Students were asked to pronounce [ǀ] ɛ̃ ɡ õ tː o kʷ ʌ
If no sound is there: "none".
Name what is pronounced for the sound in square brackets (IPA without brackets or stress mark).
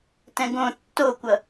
t